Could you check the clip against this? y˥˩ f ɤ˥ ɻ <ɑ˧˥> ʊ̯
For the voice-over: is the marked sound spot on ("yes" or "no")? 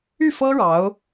yes